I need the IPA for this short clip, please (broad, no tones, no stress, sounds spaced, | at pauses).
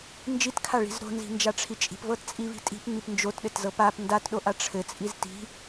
n d͡ʒ i t kʰ a ɭ i̤ z ɾ o̤ n z i̤ n d͡ʒ a ʈ͡ʂʰ i t͡ʃʼ i̤ p v ɤ t t͡sʼ i v i̤ tʼ i̤ p ŋ͡m i p n d͡ʒ o t ɗ ɘ t z ɤ p a p n d a t ɗ o ʔ a ʈ͡ʂʰ ɘ t͡sʼ i z t i̤